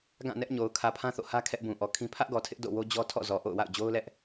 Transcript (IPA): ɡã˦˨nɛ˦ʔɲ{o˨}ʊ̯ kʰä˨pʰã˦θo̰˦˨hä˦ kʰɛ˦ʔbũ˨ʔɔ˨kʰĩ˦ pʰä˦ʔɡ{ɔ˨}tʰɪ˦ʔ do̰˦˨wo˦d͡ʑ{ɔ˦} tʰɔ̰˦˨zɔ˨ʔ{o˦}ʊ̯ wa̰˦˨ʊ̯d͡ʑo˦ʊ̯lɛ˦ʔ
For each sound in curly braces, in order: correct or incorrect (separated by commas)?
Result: correct, correct, correct, incorrect